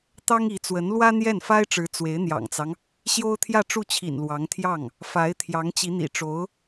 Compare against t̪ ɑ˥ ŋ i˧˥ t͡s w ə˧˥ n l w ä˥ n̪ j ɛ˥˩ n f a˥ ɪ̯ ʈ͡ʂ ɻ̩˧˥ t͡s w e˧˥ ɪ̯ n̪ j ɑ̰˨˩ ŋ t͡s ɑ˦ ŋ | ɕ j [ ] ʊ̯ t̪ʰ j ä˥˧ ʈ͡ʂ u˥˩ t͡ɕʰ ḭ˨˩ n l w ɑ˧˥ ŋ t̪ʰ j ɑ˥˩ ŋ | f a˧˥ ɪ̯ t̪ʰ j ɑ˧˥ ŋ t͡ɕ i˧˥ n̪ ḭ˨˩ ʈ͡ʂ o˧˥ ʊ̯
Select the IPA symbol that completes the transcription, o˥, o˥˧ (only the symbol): o˥